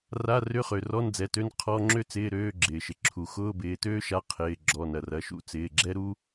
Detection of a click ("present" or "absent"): present